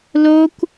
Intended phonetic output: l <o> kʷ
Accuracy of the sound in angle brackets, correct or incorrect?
correct